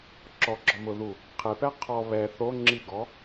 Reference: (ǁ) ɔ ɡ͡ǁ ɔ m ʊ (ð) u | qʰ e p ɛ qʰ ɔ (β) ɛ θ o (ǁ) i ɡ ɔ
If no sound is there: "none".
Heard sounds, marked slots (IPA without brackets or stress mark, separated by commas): ǁ, ð, β, ŋ͡ǁ